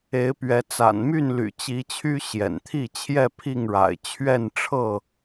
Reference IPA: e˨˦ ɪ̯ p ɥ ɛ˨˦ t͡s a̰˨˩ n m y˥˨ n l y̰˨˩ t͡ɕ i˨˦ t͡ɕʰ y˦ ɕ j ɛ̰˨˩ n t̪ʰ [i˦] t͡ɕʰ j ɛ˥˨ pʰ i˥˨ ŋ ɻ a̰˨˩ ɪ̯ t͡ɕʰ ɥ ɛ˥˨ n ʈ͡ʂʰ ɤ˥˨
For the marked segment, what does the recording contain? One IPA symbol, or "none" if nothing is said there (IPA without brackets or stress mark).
i˥˨